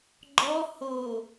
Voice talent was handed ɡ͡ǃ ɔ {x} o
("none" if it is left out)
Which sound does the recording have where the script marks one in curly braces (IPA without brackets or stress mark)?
h